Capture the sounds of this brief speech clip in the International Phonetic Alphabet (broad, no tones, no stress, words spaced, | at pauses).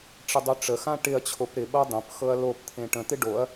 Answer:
ʈ͡ʂɪdˤyʈ͡ʂəxã ʈɪɐ̯t͡ɕʰop ɾɪɓɤ dˤə̃p xɤɐ̯lopt̪ʰẽ ʈə̃t̪ɪ ɖoɐ̯